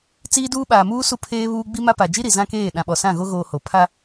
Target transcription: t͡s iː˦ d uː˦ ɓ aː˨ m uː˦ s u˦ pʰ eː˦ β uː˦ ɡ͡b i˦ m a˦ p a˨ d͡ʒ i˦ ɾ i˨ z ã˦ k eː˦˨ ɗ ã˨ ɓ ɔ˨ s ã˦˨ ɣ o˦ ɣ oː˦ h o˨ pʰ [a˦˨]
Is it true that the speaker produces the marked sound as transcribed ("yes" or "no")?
no